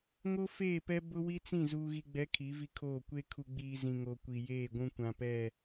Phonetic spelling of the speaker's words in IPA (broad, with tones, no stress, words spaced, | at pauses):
ŋo˦feː˦˨pɛ˦ bʊ˦wi˦t͡sĩ˦˨ zuː˨ɣi˨ɡ͡bɛ˨˦ kʰi˨˦vi˦kʰoː˦˨ kʷe˦ kʰu˨ɡ͡biː˨ zĩ˨ŋoː˨ kʷi˨jeː˦˨ɡʷũ˦ kʷã˨pɛ˦˨